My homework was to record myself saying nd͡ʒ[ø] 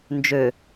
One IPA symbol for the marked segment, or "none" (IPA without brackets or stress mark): ø